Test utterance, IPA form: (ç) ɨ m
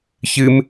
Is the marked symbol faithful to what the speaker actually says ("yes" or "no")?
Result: yes